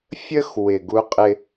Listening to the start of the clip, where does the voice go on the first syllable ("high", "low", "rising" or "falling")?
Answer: high